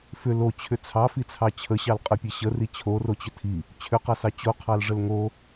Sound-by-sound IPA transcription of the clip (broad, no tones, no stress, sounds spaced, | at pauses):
f ʏ l o t͡ɕʰ ʏ t͡sʰ ɑ f i t͡sʰ ɑ t͡ɕʰ ə ɕ ɑ l qʼ ə pʲ ə ɕ ə r i t͡ɕʰ o r o t͡ɕ ʏ tʰ i | t͡ɕʰ ʏ q ɑ s ɑ t͡ɕ o qʰ ɑ l ʐ ə l ŋ o